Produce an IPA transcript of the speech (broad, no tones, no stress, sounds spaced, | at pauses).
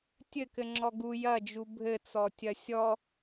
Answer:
tʲ ɘ k ɘ ŋ͡ǁ ɔ ɡ u j ɐ d͡ʒ u bʱ ɘ t͡s ɔ tʲ ɐ sʲ ɔ